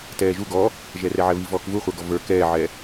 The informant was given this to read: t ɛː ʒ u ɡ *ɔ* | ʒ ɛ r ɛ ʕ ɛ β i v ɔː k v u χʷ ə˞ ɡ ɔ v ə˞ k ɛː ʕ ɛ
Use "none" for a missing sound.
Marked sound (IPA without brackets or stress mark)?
ɔ